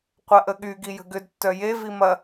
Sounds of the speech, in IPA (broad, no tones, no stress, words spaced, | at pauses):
qʷɐʔəɠy ɡijə̤ɡʏd tːœje vimɐ